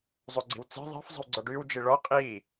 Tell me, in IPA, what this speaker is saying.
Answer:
zˤoɡ͡ǀi̤wt͡se̤ ðˤe̤f zˤi̤wɡ͡ǀɔɖyːw d͡ʒiɭɔ qʼiː

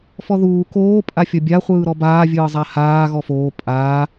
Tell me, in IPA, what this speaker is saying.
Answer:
fɔðuː koː pʼafʲɔbʲa χʷɯːɾɔbaː vʲɯːzˤahaː ɣɔfoː pʼaː

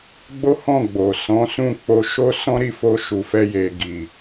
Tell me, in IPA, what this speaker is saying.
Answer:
ɡ͡bo˦hɔ̃˦˨ ɡ͡bo˨sɔ̃˨˦sũ˦˨ k͡po˧ ʃo˦sɔ̃˦ɾi˦˨fo˧ ʃu˨fɛ˧je˨ ɡi˨

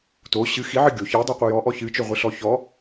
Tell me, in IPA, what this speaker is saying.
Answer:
to ɕɨ xiʕɨ ɡʲo çidˤiqʷi jɔʔɔ çɨt͡ʃoʁʷɨɬɔ çɔ

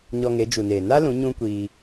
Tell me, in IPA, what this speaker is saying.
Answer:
ɲɔ˧ŋe˨˦ d͡ʒu˨neː˨ na˦lũ˨˦ ɲũ˦kʷiː˧

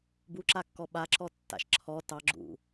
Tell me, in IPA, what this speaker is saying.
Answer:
buǁakːɔ ɓaǁɔ tːa̰ʃ ǁʰɔ tɑɡ͡ǁṵ

